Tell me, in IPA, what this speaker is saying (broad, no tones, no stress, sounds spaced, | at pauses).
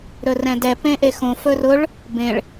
ɾ ɵ r ɛ̃ d ɛ p ẽ ʔ e x õ f ɵ r ʊ ɭ | b ẽ ɭ